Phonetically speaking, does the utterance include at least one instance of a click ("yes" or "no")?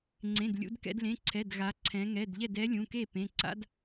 yes